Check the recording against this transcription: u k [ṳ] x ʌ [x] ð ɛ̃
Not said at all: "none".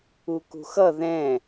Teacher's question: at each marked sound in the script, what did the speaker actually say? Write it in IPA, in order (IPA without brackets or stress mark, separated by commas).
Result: ṳ, none